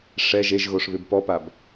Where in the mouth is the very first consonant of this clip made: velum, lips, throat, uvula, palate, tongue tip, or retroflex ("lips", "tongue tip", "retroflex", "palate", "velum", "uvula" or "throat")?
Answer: retroflex